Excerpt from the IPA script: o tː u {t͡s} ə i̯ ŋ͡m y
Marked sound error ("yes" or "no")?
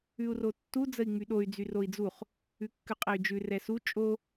yes